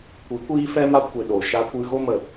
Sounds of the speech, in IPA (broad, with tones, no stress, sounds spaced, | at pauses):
kʷ i˨˦ kʷ iː˦ f ɛ˦ m a˦ kʷ e˨ ɗ o˨ ʃ a˦ kʷ ɨ˦ ɣ o˦ m ə˨